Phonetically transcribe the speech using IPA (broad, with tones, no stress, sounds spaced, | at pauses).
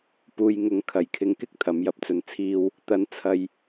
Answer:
p uː˨ j ŋ ʊ˨˥ ŋ kʰ ɐ˨˩ j kʰ ɪ˨˧ ŋ k ɪ˥ k̚ t̪ʰ ɐ˨˥ m j ɐ˧ p̚ t͡s ɵ˧ n t͡sʰ iː˥ w | t̪ ɐ˨˥ n t͡sʰ ɐ˨ j